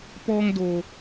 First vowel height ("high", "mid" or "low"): mid